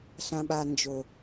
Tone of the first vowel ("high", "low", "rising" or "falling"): low